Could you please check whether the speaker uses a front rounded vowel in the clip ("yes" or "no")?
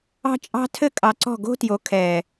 no